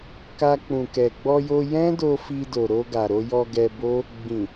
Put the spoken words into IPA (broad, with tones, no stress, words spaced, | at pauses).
ka˧k͡pũ˨kɛ˨ ɡ͡bɔ˧jo˧jɛ̃˦do˧ fi˧do˨ɾo˧ɡa˨ ɾo˧jɔ˧ ɡɛ˧bo˦ | ɡ͡bĩ˨